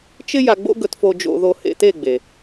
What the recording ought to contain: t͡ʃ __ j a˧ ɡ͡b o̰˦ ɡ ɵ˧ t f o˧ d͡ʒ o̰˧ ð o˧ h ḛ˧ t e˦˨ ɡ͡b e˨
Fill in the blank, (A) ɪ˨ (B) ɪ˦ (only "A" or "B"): B